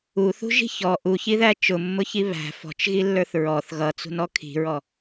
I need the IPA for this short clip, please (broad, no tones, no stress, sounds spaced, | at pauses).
u θ ṳ ʒ i̤ ç ɔ ʔ u ç i ð æ t͡ʃ ʊ mː ʊ ç i β æ̤ f ɔ̤ t͡ʃ ɣ i lː ə˞ θ ɹ ɔ θ ɣ ʌ t͡s ṳ n ɔ kʰ i̤ ɹ ɔ